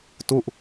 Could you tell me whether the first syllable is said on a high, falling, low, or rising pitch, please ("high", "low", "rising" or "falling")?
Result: falling